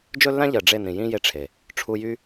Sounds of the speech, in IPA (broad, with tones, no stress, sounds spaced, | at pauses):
d͡ʒ ɵ˦ lː ã˦ ʎ ɜ˨ ɖ͡ʐ e˦˨ n ĩ˨ j ĩ˦ j e˧ ʈ͡ʂʰ e˨ | ʈ͡ʂʰ u˧ j y˦